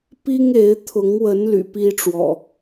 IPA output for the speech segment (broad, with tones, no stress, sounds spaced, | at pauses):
p i˦ ŋ e˨˦ ɪ̯ t̪ʰ ʊ˨˦ ŋ w ə˨˦ n l y̰˨˩ p i˦ ʈ͡ʂ w ɔ̰˨˩